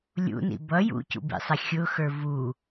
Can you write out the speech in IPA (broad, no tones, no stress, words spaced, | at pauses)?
lʲṵnḭ bʌ jṵcṵbḭsˤɛ xʲʊxə˞ vu